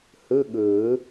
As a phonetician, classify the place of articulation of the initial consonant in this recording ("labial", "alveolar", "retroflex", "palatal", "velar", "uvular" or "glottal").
glottal